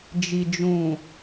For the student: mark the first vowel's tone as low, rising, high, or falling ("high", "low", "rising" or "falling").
low